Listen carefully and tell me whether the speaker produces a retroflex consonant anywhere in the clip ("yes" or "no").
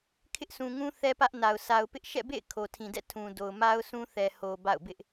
no